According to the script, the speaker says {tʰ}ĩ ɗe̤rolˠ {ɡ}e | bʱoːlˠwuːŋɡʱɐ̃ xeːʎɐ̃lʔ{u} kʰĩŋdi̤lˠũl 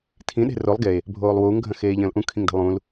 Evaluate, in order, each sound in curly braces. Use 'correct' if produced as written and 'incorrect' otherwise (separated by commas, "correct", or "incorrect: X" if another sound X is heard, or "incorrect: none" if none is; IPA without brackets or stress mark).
correct, correct, incorrect: ũ